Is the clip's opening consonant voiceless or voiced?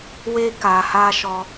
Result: voiced